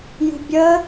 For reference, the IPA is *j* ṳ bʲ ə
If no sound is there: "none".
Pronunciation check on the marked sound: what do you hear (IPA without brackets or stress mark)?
j